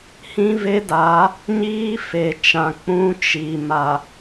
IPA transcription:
hĩ˦ve˦daː˨˦ | ɲiː˦fe˨t͡ʃã˨ k͡pũ˦t͡ʃi˨ ma˨

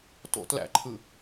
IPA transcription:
to̰ tlæ̰ǃʰɯ

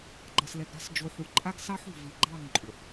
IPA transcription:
ɡ͡ǃʌ˨slɛ˨ɡɾa̤˦s d͡ʒo˨ħu˨ǃʼa˦ɡ sɑ˦ħṳ˨vi˨ɡ͡ǃɑ˦˨ŋ ǃʼu˨ħ

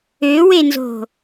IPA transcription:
øwenzo̤

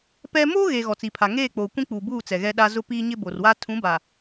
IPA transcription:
pɛ˦ moː˦ɣe˨ ɣɔ˨t͡si˨pʰa˨ ŋeː˦˨k͡poː˨ kʷĩ˦k͡puː˨buː˦˨t͡sɛ˨ ɣɛ˨ɗa˨ zʊ˦piː˦ɲɪ˦ bo˨rwa˦ tʰũ˨˦baː˨

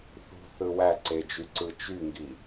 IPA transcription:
θṳθɯ wæǀed͡ʒyǀɯ t͡ʃyŋɡi

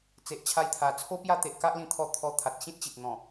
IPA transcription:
t͡se˨ʔt͡ɕʰa˧jt̪ʰa˨˩ t͡sʰo˦pja˦t̪e˨ʔ ka˦ʔlĩ˧t̪ʰɔ˧ t̪ʰɔ˧ t̪ʰa˨t̚ɕĩ˦t̚t͡ɕi˨t̚n̪ɔ̃˨˩

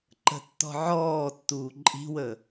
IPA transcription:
ǃə̤tːɔ̤ ʕɔːtːuː ǃʼi̤wə

